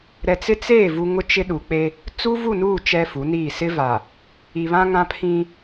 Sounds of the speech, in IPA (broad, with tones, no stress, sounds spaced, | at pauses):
ɾ ɛ˨ t͡s ɪ˦ t͡s eː˦˨ v u˦ ŋ ʊ˦ t͡ʃ ɪ˦ ɗ u˨ k͡p e˦ | t͡s u˦ v u˦˨ n uː˦˨ t͡ʃ ɛ˦ f u˨˦ n iː˦˨ s ɪ˦ v a˨ | i˨ β ã˦ ŋ ã˦ pʰ ĩ˦